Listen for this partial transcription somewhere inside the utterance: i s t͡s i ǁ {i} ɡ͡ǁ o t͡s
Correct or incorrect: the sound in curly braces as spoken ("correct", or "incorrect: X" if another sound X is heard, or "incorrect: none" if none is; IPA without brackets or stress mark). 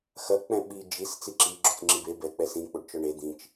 correct